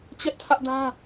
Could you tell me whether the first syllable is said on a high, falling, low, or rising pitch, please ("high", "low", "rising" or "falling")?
high